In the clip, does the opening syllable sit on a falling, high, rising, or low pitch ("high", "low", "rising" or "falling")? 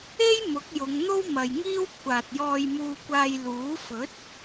high